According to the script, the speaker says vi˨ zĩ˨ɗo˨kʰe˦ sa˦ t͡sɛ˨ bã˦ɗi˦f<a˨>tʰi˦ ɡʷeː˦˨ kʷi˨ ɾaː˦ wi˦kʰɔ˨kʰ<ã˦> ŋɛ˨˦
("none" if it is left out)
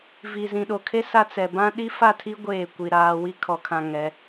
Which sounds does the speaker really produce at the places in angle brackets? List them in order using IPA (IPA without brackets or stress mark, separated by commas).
a˦˨, ã˨